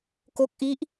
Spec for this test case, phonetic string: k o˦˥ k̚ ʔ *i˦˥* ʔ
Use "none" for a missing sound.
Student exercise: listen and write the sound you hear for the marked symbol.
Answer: i˦˥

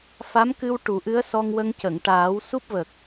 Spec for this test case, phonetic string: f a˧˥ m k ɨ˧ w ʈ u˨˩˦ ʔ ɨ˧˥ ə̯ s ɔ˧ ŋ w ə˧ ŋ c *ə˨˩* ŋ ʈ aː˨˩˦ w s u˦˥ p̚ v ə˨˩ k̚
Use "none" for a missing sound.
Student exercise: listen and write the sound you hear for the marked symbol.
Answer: ə˨˩˨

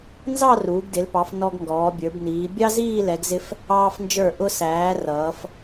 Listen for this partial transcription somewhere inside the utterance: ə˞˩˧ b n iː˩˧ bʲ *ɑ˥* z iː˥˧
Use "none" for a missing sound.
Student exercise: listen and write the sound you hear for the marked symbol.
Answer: ɑ˥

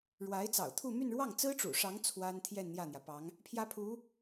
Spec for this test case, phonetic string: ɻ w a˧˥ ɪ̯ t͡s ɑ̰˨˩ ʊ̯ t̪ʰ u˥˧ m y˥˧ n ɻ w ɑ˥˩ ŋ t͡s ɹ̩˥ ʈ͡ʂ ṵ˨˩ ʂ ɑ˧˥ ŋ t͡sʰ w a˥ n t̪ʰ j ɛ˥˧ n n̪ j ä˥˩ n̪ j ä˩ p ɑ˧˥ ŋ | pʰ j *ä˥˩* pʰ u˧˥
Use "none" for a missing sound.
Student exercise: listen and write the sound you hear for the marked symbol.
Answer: ä˥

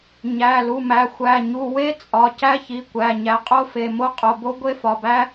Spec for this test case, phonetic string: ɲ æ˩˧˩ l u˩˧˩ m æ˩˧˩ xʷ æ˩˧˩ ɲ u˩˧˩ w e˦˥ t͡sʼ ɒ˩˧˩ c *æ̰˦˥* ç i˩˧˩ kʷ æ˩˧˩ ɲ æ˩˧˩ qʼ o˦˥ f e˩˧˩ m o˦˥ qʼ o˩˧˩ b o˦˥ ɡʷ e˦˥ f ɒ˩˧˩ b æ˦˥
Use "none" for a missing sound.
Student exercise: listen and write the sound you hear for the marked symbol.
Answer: æ˦˥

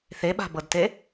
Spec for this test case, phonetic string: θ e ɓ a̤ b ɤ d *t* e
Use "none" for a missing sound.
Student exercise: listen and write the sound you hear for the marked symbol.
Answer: t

